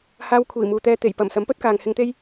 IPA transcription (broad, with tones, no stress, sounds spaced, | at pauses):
h aː˧ w kʷʰ iː˨˩ m uː˨ t̪ ɛː˧ t̪ e˨˩ j p ɐ˨˩ m s ɐ˨˥ m p ɵ˥ t̚ k aː˨ ŋ h ɪ˧ ŋ t̪ e˥ j